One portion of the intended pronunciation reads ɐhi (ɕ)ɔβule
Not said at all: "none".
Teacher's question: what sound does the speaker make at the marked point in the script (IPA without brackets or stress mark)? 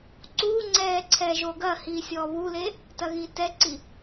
sʲ